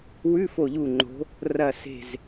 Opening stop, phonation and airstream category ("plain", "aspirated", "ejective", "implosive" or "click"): click